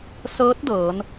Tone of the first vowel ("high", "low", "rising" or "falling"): rising